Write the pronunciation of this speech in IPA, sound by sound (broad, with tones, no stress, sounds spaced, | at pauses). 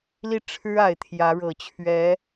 l i˥˩ ʈ͡ʂʰ ɻ̩˥ a˨˩ ɪ̯ t̪ʰ j ä˧˥ ɻ ɤ˨˩ t͡ɕʰ ɥ ɛ˧˥